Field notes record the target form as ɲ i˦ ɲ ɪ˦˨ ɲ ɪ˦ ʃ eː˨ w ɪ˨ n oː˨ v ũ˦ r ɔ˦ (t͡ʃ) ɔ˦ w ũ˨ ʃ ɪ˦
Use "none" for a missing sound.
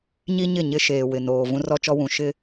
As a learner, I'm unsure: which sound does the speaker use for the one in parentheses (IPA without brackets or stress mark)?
t͡ʃ